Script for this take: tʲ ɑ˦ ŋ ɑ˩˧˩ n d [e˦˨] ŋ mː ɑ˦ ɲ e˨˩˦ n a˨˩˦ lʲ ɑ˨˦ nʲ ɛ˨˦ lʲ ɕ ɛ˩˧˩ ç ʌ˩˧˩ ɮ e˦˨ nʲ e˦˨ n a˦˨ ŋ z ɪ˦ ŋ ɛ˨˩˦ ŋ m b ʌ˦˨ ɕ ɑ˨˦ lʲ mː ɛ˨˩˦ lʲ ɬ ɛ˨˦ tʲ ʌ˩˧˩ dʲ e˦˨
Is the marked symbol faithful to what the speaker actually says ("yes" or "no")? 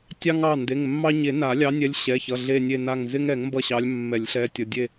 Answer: no